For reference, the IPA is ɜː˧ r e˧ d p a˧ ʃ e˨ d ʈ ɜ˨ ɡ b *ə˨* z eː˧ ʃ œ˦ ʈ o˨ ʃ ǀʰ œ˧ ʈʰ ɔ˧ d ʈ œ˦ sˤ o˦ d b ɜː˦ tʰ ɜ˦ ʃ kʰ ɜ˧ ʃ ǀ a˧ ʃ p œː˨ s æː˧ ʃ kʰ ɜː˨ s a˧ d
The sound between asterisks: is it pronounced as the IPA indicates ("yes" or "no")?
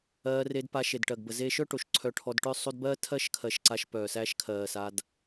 yes